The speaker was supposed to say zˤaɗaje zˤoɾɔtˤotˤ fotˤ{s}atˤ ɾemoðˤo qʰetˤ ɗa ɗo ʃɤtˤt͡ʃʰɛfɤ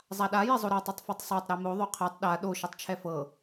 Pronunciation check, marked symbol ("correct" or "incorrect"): incorrect